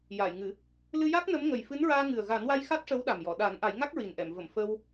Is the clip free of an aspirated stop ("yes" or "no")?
yes